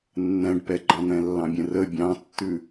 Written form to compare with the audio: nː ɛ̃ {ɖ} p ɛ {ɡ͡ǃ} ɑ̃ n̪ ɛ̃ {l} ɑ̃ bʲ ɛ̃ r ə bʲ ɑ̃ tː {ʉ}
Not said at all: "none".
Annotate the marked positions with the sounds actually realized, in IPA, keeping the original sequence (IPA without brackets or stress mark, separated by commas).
ɖ, ɡ͡ǃ, lː, ʉ